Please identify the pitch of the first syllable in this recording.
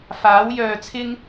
rising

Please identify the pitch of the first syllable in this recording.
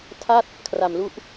falling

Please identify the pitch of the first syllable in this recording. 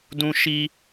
high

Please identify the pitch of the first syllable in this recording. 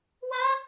high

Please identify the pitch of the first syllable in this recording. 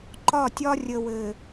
falling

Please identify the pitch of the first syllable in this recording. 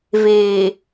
low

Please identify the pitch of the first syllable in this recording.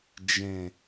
low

